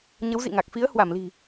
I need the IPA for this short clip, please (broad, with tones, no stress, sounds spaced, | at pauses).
ɲ ə˨˦ w z ḭ˧˨ ŋ a˨˩ k̚ f i˨˦ ə̯ h w a˧˩ m l i̤˨˩